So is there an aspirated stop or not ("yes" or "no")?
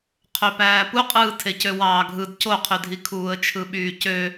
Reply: yes